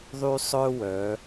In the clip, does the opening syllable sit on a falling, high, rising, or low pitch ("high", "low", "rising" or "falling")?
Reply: high